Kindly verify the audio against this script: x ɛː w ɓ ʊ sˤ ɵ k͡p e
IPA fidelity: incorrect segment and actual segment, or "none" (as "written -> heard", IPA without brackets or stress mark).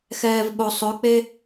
w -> v